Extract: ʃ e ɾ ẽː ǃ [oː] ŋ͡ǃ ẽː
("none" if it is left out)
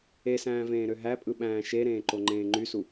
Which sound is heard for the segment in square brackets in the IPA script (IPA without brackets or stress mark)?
o